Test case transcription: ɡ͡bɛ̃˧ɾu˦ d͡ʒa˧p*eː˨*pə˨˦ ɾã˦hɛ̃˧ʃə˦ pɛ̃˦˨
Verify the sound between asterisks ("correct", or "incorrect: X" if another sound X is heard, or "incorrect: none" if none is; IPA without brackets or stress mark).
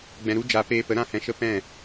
incorrect: eː˧